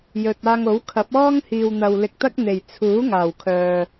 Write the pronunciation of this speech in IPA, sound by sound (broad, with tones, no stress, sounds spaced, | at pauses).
j ɵ˨ t̚ aː˧ ŋ o˨˥ w kʰ ɐ˨˥ p̚ ɔː˥ ŋ h iː˨ w n̪ ɐ˨ w l ɪ˨ k̚ t̪ ɐ˥ k̚ n̪ e˨˩ j t͡sʰ uː˨˥ ŋ aː˨˩ w kʰ œː˨